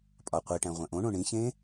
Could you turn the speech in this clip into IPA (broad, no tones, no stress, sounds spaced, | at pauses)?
pʼ ɒ qʷ i ʈ æ̃ ʁʷ æ̃ ʔ õ ɳ õ ɳ ĩ ç ẽ